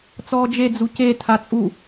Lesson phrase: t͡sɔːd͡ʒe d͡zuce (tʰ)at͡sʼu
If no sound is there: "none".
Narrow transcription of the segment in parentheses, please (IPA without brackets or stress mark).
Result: tʰ